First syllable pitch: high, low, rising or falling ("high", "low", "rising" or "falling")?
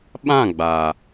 falling